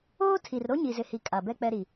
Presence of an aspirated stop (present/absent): present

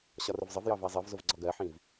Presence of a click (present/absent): present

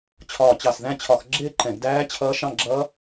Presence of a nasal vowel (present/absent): present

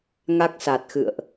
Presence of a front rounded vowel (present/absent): absent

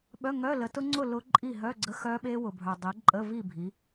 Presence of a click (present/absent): present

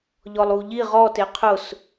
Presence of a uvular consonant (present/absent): present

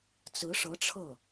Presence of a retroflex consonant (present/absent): present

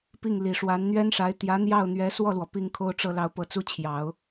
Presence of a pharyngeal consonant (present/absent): absent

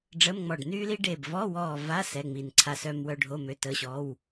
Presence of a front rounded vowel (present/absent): present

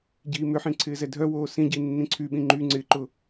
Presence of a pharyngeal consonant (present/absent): present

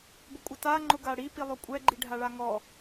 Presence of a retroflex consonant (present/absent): present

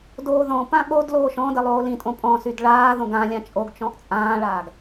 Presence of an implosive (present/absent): present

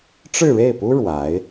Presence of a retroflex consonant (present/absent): present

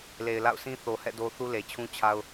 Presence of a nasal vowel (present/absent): present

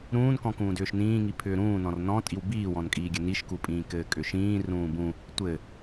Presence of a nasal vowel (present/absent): present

